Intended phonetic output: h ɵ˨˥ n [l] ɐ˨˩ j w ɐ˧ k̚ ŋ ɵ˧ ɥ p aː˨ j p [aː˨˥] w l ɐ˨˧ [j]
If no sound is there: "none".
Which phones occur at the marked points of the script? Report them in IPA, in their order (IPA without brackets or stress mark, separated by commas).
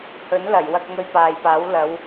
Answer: l, aː˨˥, w